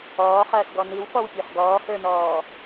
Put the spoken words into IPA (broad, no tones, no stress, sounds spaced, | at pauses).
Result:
ɔː χ ɐː s ɡ ɔ n i w f ɔ w pʲ ə˞ χ ɡ ɔː h ə˞ n ɔː